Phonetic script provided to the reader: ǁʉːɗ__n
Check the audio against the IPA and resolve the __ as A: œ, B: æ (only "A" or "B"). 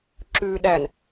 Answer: B